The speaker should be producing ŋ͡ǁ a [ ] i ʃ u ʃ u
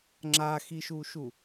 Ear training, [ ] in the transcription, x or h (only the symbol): x